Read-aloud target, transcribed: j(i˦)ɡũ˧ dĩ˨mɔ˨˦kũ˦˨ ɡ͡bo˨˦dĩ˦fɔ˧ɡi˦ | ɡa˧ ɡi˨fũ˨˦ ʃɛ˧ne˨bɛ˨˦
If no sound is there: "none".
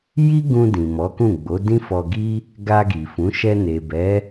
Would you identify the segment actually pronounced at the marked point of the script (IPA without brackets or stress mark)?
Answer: i˦